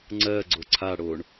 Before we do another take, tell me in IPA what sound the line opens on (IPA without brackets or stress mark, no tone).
ŋ͡ǀ